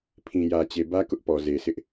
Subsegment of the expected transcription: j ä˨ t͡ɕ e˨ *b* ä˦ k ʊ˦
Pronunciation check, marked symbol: correct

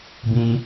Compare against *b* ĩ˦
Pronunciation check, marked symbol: correct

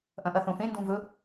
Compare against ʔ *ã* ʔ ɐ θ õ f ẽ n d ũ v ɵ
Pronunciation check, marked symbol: incorrect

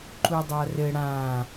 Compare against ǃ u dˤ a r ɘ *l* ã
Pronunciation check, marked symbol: incorrect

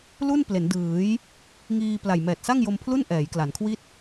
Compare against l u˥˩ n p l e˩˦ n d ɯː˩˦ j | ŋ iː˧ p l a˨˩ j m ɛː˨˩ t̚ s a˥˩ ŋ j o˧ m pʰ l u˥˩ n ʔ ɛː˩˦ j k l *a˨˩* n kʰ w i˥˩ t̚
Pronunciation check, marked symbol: incorrect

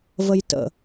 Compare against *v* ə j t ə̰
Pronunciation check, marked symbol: correct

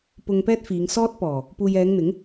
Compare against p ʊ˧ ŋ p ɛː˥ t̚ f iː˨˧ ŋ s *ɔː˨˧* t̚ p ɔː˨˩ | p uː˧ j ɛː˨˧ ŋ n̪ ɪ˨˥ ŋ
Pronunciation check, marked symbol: incorrect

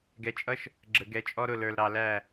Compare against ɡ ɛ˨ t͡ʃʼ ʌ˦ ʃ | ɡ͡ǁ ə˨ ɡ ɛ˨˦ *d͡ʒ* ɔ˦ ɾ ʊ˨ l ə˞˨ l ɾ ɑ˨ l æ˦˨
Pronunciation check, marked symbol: incorrect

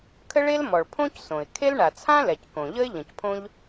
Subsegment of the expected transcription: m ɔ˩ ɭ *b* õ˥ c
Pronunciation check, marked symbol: incorrect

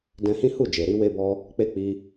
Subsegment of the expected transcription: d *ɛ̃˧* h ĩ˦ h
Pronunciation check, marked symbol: correct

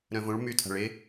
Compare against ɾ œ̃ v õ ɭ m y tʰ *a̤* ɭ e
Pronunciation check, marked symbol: correct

